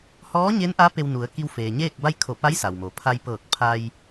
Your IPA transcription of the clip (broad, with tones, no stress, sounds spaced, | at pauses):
h ɔː˧˥ ɲ e˧˥ n ʔ a˧˥ p e˧ w n u˩˧ ə̯ k i˧ w f eː˩ ɲ eː˥˨ k̚ b a˥˨ j kʰ o˧˩ p a˧˥ j s a˩ w m o˩ pʰ a˧ j p ɤː˧˩ k̚ pʰ a˧ j